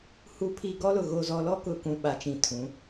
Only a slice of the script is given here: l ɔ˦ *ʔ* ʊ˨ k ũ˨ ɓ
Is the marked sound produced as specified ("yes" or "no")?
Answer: no